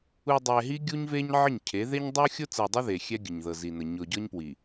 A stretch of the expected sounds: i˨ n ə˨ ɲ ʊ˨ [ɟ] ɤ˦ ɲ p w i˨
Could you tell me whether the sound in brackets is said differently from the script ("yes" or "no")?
no